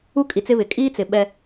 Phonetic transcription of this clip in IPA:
u˦kʼi˨t͡sɪ˦βɪ˨ kʼiː˦t͡sɪ˨ ɓɛ˦

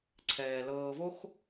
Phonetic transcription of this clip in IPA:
ǀʰɛː˩ lɤː˨vo˥x

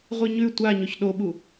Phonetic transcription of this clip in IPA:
ʁʷiɲʉ tʷaɲɵç ɗoɓu

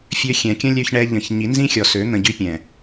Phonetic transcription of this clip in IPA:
fʲø˧xʲɛ̃˨kʲə̃˦ lʲø˧çɳɛ˧ ʎə̃˨ç ɲi˨˦nzĩ˦xʲɔ˨sø˨˦ n̪ə̃˧ɟy˦pʲɛ̃˨

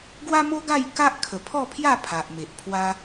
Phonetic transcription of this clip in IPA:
ɡwa˦mo˦ɡa˥˧jka˦ʔ kʰə˨˩pʰɔ˥˧pʰja˥˧ pʰa˨ʔ me˨ʔpʰwa˦

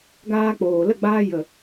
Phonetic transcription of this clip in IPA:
ɡaː˧k͡poː˨ lə˦˨ɡ͡baː˧ jə˨

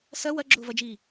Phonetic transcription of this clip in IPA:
sɐ wɐɡ͡ǁʊːvɐd͡ʒiː

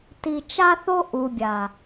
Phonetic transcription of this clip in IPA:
ti˨ t͡ʃa˦θo˦ ʔu˨bʲa˨

